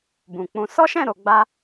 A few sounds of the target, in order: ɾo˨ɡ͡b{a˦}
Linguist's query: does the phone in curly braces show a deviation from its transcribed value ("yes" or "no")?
yes